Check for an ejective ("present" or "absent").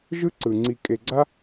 present